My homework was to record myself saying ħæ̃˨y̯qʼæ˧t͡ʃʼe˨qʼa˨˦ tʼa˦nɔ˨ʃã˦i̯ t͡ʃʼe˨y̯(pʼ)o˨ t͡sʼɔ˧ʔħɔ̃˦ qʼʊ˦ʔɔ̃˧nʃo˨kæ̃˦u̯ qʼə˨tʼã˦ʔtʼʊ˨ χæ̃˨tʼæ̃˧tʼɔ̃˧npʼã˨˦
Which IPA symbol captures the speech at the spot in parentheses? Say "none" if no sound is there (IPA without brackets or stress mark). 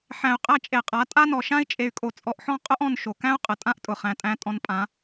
kʼ